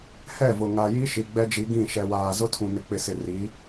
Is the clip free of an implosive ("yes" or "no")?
yes